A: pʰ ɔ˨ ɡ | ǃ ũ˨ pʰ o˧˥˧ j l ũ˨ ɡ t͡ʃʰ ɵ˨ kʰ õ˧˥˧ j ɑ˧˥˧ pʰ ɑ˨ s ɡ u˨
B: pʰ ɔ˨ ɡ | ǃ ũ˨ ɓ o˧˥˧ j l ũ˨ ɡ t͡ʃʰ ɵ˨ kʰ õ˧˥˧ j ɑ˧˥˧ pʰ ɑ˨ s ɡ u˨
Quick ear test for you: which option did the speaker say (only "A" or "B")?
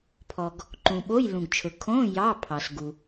B